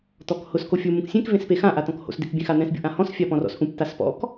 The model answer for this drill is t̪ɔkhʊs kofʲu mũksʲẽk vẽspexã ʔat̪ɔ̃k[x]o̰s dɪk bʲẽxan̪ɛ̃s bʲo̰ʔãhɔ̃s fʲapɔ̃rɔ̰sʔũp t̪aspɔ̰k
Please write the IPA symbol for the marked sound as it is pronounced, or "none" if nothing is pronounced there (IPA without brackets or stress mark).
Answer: h